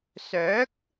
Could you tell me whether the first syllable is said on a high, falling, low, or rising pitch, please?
rising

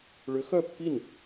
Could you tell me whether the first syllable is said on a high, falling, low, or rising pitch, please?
rising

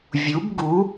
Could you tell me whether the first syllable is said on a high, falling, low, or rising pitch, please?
rising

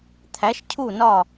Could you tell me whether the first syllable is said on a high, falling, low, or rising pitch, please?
rising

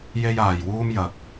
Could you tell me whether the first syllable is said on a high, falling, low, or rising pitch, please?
high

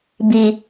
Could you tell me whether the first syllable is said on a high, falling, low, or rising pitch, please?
high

